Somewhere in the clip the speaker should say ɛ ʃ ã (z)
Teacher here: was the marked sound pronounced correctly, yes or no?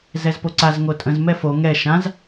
yes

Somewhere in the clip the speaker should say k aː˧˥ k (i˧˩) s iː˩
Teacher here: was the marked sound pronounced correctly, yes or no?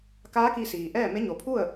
no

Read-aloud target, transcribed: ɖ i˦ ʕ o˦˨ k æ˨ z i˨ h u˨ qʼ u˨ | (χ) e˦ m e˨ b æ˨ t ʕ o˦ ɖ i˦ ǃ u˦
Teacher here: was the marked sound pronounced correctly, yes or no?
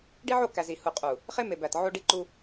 yes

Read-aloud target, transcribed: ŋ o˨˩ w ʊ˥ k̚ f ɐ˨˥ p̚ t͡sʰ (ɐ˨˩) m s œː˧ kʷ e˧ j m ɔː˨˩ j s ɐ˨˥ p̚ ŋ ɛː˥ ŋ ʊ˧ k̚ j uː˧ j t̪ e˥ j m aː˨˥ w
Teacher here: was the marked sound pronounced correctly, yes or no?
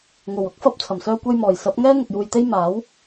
yes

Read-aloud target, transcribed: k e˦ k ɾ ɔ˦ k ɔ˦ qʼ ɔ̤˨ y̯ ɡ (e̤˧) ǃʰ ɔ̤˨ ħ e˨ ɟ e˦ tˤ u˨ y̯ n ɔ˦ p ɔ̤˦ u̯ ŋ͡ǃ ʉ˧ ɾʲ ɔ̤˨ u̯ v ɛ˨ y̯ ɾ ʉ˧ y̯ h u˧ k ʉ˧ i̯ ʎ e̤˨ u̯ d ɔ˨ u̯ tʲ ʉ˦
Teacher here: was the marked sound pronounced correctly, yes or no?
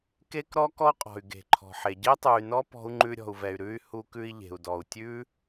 no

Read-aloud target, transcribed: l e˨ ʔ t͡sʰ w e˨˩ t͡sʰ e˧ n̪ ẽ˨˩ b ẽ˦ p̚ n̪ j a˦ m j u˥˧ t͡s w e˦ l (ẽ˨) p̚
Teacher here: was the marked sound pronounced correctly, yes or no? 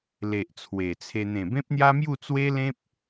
no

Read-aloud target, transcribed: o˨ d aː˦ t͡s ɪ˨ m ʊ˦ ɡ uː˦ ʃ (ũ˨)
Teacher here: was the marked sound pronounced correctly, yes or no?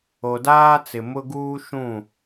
no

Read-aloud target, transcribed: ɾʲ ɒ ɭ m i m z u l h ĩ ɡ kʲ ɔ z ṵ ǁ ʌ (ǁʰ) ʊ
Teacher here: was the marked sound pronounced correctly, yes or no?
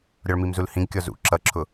yes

